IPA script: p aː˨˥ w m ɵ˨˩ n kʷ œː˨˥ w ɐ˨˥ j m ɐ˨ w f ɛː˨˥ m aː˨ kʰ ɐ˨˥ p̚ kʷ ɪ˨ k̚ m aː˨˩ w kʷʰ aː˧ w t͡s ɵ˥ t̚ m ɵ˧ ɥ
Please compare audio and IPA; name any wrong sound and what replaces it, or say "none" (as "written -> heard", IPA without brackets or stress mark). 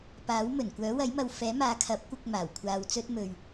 none